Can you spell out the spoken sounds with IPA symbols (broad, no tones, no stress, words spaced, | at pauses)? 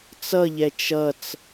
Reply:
t͡sʌʎɛ t͡ʃʌt͡s